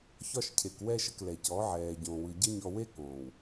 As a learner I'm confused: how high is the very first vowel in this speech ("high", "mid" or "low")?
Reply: low